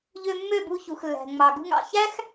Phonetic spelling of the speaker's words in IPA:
ʎ ø˧ mː ø˦˨ b u˧ ç u˨ x lː æ̤˨ ŋ͡m ɑ˨ ɡ ṳ˧ ŋ ɑ̰˨ ç æ˦ x

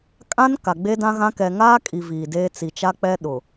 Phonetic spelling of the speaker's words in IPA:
kʼ ã˦ n k a˨ ɡ͡b e˦ d ã˦ ɣ ã˦ k ɛ˨ ŋ aː˦ kʼ i˨ v iː˨ d eː˦ t͡s i˨ t͡ʃ a˦ k͡p ɛ˦ ɗ ʊ˨

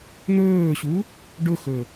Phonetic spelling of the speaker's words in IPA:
n̪ ɵː ɕ u | ɖ ʊ x ɵ

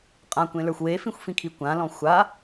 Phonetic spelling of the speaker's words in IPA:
qʼ ã kʷ ẽ l ə˞ xʷ w e f ĩ xʷ f ĩ kʰ i kʷ ã l ɔ̃ xʷ a

